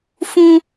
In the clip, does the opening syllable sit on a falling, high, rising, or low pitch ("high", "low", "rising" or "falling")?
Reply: high